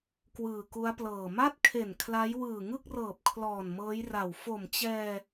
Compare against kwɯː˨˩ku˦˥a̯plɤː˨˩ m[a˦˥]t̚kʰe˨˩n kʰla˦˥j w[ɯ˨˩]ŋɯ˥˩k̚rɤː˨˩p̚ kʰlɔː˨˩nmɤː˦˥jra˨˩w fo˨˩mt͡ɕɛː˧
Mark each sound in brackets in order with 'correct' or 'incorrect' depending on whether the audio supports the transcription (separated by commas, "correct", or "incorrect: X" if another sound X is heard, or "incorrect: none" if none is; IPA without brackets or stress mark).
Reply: incorrect: a˥˩, incorrect: ɯː˨˩